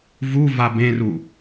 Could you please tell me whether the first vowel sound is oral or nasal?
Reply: oral